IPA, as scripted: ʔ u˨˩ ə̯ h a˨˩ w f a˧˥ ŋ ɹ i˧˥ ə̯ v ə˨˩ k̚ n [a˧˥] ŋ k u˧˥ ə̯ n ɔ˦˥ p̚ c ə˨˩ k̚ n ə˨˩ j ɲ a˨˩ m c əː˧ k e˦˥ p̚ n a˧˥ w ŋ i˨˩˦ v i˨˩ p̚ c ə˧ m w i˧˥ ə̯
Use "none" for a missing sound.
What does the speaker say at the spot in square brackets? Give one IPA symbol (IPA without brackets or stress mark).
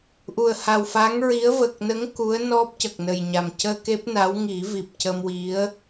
ə˧˥